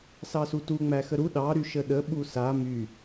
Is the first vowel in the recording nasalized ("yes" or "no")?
no